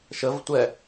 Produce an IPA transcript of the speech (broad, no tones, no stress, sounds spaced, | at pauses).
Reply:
ʃ ə v tʷ ɛ